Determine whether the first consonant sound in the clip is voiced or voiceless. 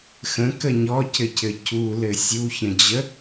voiceless